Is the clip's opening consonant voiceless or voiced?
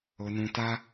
voiced